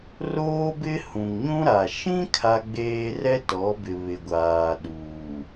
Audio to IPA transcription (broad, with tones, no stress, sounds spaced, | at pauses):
r oː˦ b ɪ˦ h ũ˨ ŋ ɲ ũ˦ ɾ a˨ ʃ ĩ˦ kʰ a˦ ɡ͡b eː˦ r ɛ˦ t ɔ˨˦ b ɪ˨ β ɪ˨ ɡʷ aː˨ ɗ uː˨